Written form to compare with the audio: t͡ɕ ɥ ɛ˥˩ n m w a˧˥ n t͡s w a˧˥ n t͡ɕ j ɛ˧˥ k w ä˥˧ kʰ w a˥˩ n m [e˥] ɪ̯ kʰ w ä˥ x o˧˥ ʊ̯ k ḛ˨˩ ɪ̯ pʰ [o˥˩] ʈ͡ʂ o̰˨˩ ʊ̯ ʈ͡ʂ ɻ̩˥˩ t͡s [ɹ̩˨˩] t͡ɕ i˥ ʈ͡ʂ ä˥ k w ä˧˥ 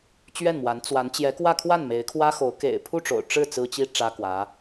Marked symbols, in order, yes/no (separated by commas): no, no, no